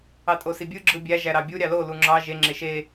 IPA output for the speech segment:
ɑ tʼ o s i bʲ ɯ ɡ͡ǁ ɯ bʲ æ ʒ æ ɾ ɑ bʲ u ɾʲ ɑ l o l u ŋ͡ǁ ɑ ʒ e ŋ͡ǁ e ʃ e

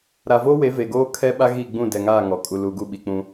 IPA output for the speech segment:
ɾ a˨ v oː˦ w e˨˦ v e˨ ɡ oː˦ kʰ ɛ˦ ɓ a˦ ɣ i˦˨ ɡ͡b ũ˦˨ d ɛ˨ ŋ aː˦˨ ŋ ɔ˨ kʼ u˨ l uː˨ ɡ u˦˨ ɓ i˨ k͡p ũ˦

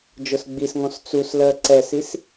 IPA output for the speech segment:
d͡ʒ ʊ s ɡ͡b i s ŋ ɔ̃ s t͡s u s l ɜ ǀ ɛ s i s

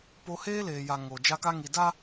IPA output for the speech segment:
p o˦ h eː˦ l eː˨ j a˨ ŋ o˨ d͡ʒ a˦ k a˦ ŋ i˨ d a˦

